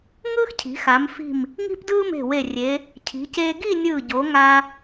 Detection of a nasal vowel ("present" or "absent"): absent